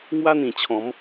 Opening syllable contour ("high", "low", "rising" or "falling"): high